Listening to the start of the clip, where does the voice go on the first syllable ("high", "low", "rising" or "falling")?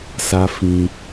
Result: high